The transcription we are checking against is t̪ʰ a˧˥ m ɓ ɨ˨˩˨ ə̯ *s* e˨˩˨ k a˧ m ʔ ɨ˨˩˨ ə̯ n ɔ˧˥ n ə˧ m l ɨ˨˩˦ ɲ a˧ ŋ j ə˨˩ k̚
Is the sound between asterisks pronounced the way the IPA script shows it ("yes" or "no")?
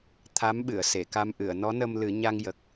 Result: yes